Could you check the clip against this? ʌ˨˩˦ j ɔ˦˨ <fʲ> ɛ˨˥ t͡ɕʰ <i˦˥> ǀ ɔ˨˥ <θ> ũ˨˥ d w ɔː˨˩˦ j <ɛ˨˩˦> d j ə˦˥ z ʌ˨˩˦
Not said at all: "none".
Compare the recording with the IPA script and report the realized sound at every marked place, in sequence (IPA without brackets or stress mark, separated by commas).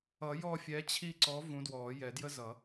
fʲ, i˦˨, v, ɛ˨˩˦